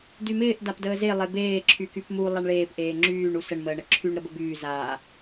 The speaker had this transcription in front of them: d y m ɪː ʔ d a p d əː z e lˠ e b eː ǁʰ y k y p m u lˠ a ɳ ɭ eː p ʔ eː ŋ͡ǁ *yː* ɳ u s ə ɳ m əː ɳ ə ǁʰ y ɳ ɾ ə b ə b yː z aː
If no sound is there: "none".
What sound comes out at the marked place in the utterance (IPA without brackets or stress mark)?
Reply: yː